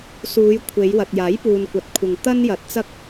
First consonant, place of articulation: alveolar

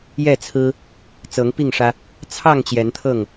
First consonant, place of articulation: palatal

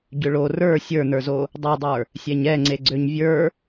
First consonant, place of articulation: palatal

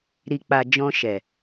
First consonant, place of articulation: alveolar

